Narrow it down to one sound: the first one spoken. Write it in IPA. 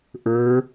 ʔ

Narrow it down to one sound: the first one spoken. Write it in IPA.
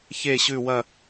ç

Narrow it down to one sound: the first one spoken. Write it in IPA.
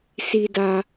s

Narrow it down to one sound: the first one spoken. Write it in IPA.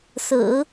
s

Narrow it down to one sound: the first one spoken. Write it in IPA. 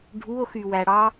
ɖʱ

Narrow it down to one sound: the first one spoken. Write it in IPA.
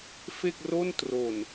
f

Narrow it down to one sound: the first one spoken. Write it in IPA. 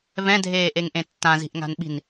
v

